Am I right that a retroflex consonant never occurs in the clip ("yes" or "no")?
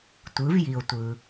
yes